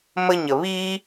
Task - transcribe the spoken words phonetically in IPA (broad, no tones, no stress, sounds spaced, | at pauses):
m ə ɲ ə β i